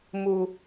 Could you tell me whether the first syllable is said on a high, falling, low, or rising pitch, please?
low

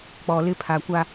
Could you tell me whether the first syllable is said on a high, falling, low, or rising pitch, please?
low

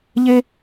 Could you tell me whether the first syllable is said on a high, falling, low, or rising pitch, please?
high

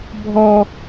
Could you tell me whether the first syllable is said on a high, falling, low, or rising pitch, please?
low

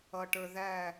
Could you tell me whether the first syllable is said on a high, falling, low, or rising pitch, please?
low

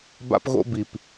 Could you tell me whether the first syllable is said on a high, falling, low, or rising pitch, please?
high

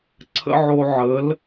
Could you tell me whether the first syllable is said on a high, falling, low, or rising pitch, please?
high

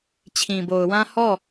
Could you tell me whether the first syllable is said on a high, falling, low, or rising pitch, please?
low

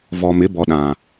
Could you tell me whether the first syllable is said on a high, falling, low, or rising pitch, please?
low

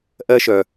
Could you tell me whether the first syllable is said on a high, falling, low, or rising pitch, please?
high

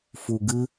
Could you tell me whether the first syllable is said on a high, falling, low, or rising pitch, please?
low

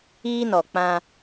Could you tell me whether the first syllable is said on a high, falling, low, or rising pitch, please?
high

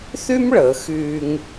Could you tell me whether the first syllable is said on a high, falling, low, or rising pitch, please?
high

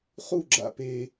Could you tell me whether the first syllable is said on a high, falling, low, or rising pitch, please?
falling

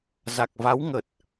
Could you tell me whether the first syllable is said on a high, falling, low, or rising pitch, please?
low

